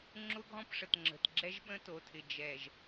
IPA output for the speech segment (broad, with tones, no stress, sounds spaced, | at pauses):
ŋ͡ǁ ʊ˦ ɡʱ ɔ̃˦ p ʂ ə˨ t ŋ͡ǁ ə̤˨ t ɡ͡ǁ ɛ˦ ʒ ɓ ə̃˦ t o˨ tʰ ɪ˨ d͡ʒ ɛ˨ ʒ